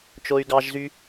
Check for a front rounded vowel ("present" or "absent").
present